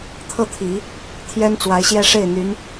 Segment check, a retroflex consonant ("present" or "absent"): present